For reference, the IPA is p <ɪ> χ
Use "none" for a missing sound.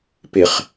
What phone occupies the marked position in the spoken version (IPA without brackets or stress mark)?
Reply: ɪ